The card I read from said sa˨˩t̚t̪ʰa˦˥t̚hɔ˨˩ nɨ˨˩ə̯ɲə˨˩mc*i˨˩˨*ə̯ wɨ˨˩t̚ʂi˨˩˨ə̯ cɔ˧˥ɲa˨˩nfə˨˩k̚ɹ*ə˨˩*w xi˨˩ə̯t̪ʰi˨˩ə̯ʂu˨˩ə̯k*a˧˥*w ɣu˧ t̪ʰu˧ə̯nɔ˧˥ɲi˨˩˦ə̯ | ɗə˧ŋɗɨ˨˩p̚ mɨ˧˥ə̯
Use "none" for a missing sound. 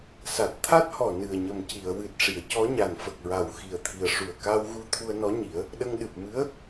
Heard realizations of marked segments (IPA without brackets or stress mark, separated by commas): i˨˩˨, a˨˩, a˧